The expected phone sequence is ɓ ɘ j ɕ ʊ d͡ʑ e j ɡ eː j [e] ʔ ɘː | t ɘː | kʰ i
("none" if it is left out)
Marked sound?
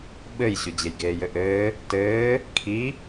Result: ɘ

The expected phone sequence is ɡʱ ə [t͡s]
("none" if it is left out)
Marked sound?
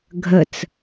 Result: t͡s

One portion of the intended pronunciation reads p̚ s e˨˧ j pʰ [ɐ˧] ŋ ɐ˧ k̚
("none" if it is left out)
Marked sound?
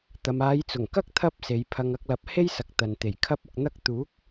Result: ɐ˧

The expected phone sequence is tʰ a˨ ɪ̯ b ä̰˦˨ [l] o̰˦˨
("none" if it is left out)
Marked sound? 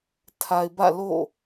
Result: l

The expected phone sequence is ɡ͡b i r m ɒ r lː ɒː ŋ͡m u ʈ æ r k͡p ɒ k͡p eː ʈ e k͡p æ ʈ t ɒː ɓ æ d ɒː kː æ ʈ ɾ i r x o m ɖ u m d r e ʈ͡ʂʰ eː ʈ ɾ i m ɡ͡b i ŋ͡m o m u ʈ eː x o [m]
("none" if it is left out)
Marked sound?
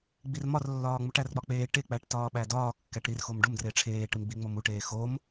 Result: m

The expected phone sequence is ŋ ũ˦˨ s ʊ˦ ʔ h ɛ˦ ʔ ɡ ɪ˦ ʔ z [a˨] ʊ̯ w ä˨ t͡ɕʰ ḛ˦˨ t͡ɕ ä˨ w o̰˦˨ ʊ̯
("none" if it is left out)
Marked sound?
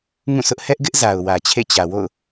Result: a˨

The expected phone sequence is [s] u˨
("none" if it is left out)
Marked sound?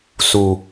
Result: s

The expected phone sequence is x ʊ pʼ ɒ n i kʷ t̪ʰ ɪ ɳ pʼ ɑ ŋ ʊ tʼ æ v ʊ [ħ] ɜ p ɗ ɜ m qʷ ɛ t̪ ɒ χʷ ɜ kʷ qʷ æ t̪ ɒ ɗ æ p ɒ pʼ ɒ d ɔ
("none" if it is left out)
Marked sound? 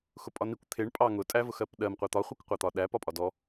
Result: x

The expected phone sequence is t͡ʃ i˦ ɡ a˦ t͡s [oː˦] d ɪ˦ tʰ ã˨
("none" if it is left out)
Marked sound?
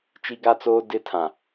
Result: oː˦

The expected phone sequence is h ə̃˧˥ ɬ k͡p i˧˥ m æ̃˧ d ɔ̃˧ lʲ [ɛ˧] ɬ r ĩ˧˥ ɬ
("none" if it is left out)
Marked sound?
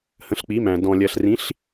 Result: ɜ˧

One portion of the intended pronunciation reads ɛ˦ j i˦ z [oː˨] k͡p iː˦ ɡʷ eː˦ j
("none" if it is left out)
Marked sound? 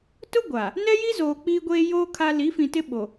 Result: oː˨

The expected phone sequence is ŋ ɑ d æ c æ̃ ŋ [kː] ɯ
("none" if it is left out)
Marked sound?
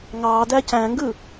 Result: ɡ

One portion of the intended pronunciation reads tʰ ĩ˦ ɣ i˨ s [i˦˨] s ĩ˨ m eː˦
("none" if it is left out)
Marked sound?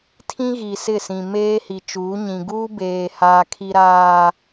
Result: ɪ˦˨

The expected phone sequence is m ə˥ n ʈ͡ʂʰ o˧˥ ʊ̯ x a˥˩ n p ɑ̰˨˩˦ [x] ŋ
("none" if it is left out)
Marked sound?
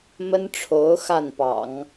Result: none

